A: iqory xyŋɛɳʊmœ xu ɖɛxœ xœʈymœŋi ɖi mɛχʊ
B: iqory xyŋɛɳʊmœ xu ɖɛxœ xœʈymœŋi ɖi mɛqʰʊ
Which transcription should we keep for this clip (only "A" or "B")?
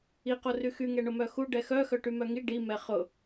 A